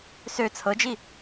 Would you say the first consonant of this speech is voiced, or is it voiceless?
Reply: voiceless